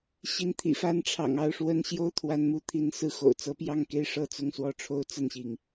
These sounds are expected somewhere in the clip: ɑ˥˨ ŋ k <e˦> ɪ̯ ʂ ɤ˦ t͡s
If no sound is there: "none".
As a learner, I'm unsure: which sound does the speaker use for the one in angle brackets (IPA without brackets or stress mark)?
e˦